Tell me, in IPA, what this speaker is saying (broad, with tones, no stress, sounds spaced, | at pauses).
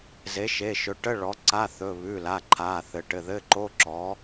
z e˩˥ ʃ e˩˧˩ ʃ ɵ˩˥ ʈ ə˧˥˧ ɭ ɔ˩˥ ǀ a˧˥˧ θ ɵ˩˧˩ β ʉ˩˧˩ l a˩˧˩ ǃʰ a˩˧˩ θ ɘ˩˥ ʈ ɘ˩˧˩ ð ɘ˧˥˧ ǃ o˧˥˧ ǁ ɔ˩˥